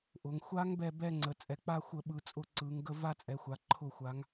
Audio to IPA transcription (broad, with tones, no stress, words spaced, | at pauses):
ʔʊ˩˧ŋxʷa˦˥ŋ bɛ˦˨bɛ˦˨ ŋ͡ǀə˩˧t͡sʼɛ˩˧k͡pa˦˨xʷə˧˩˧ ɓɯ˩˧t͡sʼʊ˧˩˧ ǀɯ˩˧ŋ ɡə˦˨ va˦˨t͡sʼɛ˩˧xʷa˩˧ǃʰʊ˧˩˧ xʷa˩˧ŋ